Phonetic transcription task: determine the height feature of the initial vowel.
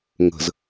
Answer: mid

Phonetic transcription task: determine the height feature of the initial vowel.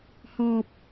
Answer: mid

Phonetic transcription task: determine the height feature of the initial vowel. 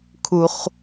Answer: high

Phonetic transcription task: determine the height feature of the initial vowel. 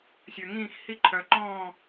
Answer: mid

